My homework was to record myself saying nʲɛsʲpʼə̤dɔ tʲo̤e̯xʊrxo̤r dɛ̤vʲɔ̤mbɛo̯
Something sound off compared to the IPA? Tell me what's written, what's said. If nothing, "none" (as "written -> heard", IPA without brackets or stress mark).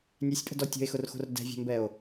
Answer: none